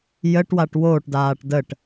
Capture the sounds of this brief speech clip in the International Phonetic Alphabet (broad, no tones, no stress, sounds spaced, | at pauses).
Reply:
j ə ʈ w a ʈ w oː ʈ d aː ʈ d ə ʈ